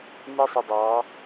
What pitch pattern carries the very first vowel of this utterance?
high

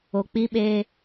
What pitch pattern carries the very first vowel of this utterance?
low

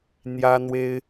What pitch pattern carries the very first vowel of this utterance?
high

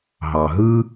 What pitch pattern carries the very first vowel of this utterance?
low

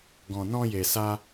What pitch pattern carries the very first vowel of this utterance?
low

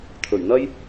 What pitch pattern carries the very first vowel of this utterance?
low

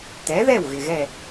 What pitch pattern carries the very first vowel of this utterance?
rising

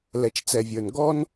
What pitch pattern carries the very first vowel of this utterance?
low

